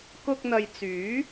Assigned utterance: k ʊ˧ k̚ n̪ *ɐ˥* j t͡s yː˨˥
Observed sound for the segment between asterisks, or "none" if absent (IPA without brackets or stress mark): ɐ˨